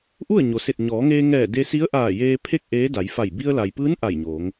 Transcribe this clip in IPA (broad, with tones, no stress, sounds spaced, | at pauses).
ʔ u˥˨ ə̯ ɲ o˩˧ s e˧˩ t̚ ɲ ɔː˩˧ ŋ eː˧ ŋ ɛː˧˩ d e˧ s i˧˥ ə̯ ʔ aː˧˩ j eː˧ pʰ e˥˨ k̚ ʔ eː˧˥ d a˩˧ j f a˧˩ j b i˧ ə̯ l a˩ j p ɯː˧˥ n ʔ a˧˩ j ɲ oː˩˧ ŋ